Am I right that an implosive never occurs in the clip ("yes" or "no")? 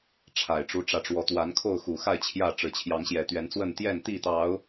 yes